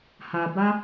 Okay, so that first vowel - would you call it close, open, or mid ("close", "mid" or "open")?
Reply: open